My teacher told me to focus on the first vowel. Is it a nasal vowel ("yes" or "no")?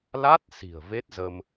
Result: no